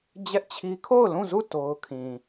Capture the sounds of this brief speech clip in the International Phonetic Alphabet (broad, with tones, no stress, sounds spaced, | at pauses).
d͡ʑ ɛ˦ ʔ t͡ɕʰ i˦ kʰ o˦˨ ʊ̯ l ũ˦˨ z u˦˨ t o˦ ʊ̯ kʰ ĩ˨